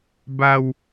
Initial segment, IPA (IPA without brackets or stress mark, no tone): b